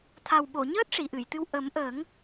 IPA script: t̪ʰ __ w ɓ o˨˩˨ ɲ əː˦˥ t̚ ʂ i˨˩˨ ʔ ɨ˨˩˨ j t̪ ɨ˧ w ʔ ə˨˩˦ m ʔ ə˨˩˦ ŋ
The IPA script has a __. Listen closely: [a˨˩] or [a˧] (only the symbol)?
a˨˩